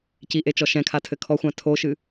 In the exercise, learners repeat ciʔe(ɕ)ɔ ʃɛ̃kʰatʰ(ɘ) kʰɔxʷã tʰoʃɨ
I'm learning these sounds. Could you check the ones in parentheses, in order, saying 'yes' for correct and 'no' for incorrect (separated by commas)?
no, yes